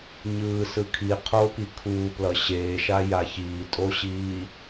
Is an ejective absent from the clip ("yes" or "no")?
no